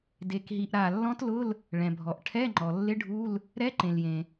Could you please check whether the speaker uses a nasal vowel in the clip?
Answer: yes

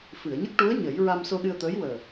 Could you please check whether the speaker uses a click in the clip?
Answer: no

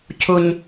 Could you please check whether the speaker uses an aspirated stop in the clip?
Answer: yes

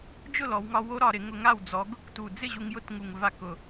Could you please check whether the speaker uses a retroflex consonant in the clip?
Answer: no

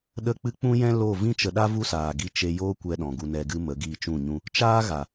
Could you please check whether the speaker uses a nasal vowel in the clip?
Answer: yes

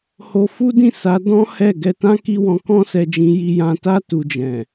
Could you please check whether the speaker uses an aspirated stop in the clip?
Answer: no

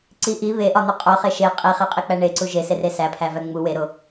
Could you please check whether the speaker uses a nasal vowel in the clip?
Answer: no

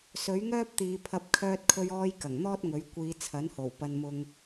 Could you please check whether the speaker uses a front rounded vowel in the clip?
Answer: yes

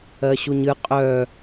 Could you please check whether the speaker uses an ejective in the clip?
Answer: yes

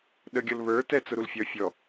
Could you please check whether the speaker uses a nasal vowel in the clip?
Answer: no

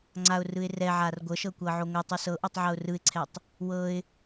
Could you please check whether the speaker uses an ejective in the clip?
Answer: no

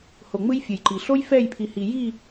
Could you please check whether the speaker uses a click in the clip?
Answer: yes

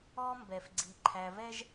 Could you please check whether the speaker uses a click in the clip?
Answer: yes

